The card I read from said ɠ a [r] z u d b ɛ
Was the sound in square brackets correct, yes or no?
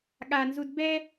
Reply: no